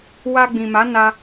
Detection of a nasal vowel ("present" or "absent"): present